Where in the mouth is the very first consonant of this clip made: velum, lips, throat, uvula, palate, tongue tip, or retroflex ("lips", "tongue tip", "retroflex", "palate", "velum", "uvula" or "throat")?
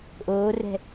throat